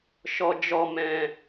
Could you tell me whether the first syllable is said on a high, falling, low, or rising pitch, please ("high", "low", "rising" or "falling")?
high